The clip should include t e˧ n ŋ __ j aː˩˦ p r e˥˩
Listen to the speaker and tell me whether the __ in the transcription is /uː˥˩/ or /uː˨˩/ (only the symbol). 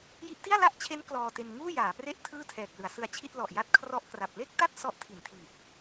uː˥˩